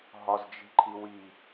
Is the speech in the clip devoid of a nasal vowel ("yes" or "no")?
yes